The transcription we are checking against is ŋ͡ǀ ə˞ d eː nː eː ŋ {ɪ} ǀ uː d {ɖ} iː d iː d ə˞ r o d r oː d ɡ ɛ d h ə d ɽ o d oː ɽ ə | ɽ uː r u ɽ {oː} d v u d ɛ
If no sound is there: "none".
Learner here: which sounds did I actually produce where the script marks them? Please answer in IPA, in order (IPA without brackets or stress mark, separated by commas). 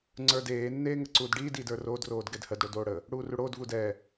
ə, ɖ, oː